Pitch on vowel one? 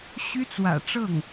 high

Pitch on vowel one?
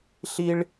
high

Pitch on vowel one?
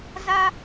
high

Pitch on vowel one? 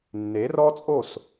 rising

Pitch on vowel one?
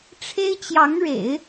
high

